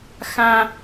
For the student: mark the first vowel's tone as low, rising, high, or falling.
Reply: high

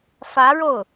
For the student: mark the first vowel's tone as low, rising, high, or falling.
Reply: rising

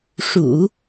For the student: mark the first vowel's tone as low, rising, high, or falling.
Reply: low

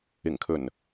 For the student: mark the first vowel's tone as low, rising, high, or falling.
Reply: low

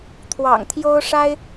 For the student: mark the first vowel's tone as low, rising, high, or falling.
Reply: low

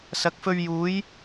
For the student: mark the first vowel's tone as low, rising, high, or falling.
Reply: rising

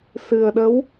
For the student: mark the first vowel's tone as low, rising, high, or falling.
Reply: low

